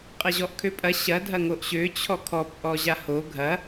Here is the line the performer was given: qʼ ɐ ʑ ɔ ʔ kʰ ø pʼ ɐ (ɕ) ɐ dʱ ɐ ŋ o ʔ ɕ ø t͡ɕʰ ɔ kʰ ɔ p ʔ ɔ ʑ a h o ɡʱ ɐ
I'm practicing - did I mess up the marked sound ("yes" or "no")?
no